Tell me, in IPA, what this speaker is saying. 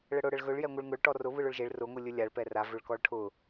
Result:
ɭəɽʊ ɽəɭɣɵɭ jɛŋʷɯɭŋʊɭ ʈɔrʊ βɯɭʊɭʒeɭ rʊ ŋʷɯlʲɵlʲaɭ pɛra vɵɭkɔɭʈʰʊ

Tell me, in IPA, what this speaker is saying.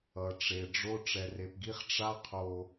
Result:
ʌ˨ʈ͡ʂe˨ɖ͡ʐo˦ ʈ͡ʂɛ˨re˨pɡi˦χ ʈ͡ʂa˦qʰo˨

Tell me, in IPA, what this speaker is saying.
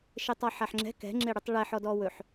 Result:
ʃetˤɒħaħŋ͡ǁɛ̤ kɛ̤ŋ͡ǁeɽʉtˤ ɭɛħɔ dɔwɵħ

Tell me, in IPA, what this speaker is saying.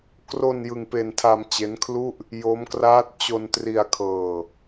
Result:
kro˧n jɯ˧ŋpe˧ntʰa˧m t͡ɕe˦˥nkʰlu˥˩ʔ | jo˦˥mkraː˦˥t̚ t͡ɕo˧ntri˧a̯ kʰɤː˧

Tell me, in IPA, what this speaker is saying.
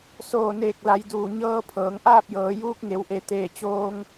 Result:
soː˧˩neː˧˩k̚la˩˧j duː˧˩ɲɤː˧ pʰɤː˩˧ŋʔaː˥˨p̚jɤː˩˧ juː˧k̚ŋe˩˧wʔe˩˧t̪eː˧˩ t͡ɕoː˧ŋ

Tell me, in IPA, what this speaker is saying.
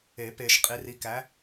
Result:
e˨˩˦pe˨ʃ qʼi˨˥ ri˨˥kæ˨˥

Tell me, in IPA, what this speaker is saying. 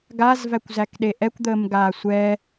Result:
ɡazvækʷzækɗe ʔɛkʷd̪əːmɡaː sʷɛ

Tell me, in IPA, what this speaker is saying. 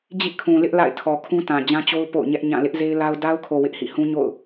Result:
d͡ʑḭ˦˨kʰũ˨lɪ˦ʔ la̰˦˨ɪ̯tʰɔ˨kʰũ˦ tã˨ d͡ʑã˦t͡ɕo˦ʊ̯ po̰˦˨ʊ̯ɲɛ˦ʔɲã˦˨ lɪ˦ʔze˦ɪ̯la˦ʊ̯ da˦ʊ̯kʰo˨ wɪ˦ʔhḭ˦˨hũ˦ɲo̰˦˨ʊ̯

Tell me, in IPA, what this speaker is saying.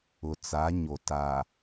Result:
ʊ˨t͡sa˨˦ɲo˨ ta˨

